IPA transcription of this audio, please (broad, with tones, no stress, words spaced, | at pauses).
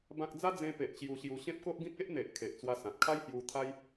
bã˦k̚ d͡za˦d͡zẽ˧pe˨ʔ t͡ɕju˧ɕju˧ ɕẽ˦p̚ko˦ʔɡĩ˦k̚ e˦ʔn̪e˨ʔ kʰe˨ʔt͡swa˧ sã˨t̚kʰa˦jhju˧ t̪ʰa˦j